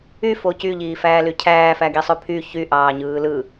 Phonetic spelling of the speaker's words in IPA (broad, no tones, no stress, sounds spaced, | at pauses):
y f o c y ʎ iː f æː l y cʰ æː f æ ɡ i sˤ ø pʰ y ç y ʔ ɑː ɲ ɯː l ɯ